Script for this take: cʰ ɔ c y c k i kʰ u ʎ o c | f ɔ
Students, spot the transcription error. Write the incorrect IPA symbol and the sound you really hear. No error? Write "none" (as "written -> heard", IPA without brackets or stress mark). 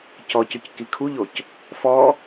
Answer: cʰ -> c